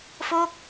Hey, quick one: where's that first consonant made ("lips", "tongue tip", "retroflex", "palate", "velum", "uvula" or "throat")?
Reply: lips